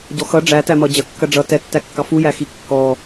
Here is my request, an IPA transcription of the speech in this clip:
ɟ ɔ x ʌ ɖ͡ʐ æ t æ m ʌ d͡ʑ ɐ kː ɐ ɖ͡ʐ ʌ t ɛ tː æ kː ɑ f u j æ x i kː ɔ

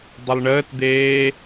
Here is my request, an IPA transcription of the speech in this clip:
dˤ ə lˠ ɳ əː t d̪ eː

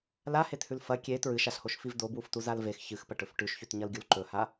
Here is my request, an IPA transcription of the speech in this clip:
l a h e t h ʉ l f ɐ kʲ e t ɹ ɨ ʃ a ɬ h o ʃ f i v d o b w u f t u z a l v e x ç ɨ x p ɐ ʈ ɵ f ʈ ʉ ʃ ç ʉ t ɲ ɐ l ɡʲ u l ǃ ɵ h a

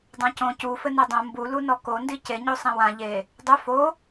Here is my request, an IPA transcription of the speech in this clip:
dˤ ã c õ c u f ɘ n ɛ dˤ õ m b u l u n ɔ k o n d i c e ɲ o sˤ ɛ̃ w ã ʎ e | dˤ ɘ f o

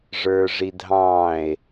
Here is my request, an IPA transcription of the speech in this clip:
ʐ ə˞ ʐ i dʱ ɑ̃ː e̯

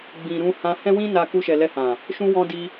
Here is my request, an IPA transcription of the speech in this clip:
ɡ͡b ĩ˨ ɾ ũ˧ h ã˧ h ɛ̃˦ w ĩ˦ n a˧ k u˧ ʃ ɛ˨ l ɛ˧ h ã˨ | ʃ ũ˧ w ɔ̃˧ d i˧

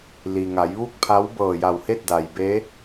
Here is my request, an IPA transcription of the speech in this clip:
l i˩ ŋ a˩˧ j ʋ u˥˨ k̚ pʰ a˧˥ w b ɤː˧˩ j a˧˩ w h e˥˨ t̚ d a˩ j b e˧˥

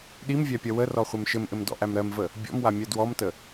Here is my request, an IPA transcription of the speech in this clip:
ɗ i m vʲ æ pʲ ɐ w ə r ɔ χʷ ɘ m ʃ ɘ m ʔ ɘ m d ɔ̰ ʔ æ m ɾ ɜ m v ə | bʲ ɔ̰ m w a mʲ ɜ d w ɔ m t ə

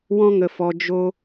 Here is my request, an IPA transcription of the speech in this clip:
w ɔ̃˦ ŋ ə˧ f ɔ˧ d͡ʒ o˦

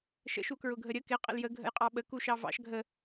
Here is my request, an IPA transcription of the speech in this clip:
ʃ ə̰ ʃ u k ɹ ʊ ɡʱ ə ɾʲ ə k ɪ qʼ ə̰ l j ə ɡʱ ə̰ j qʼ ɑ ɓ ə k u ʃ ɑ v ɑ̰ ʃ ɡʱ ə

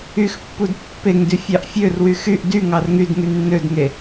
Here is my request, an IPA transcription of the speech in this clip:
y x pː u d pː e ŋ d y fʲ ɑ ʔ fʲ ø r w y x y ʔ d y ŋ ɑ r ŋ y d ŋ y nː ø d ŋ e

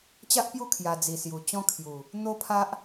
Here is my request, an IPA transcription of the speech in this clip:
t͡ɕ a˦ ʔ p j u˥˧ kʰ j a˧ d͡z i˨˩ s j u˨˩ t͡ɕ ɔ̃˦ kʰ j u˨˩ | n̪ o˦ pʰ a˦ ʔ

